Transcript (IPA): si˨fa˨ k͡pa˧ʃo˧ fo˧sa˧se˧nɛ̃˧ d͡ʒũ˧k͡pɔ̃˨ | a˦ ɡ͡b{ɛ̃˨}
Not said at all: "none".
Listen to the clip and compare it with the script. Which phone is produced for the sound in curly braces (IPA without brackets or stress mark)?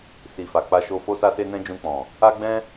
ɛ̃˦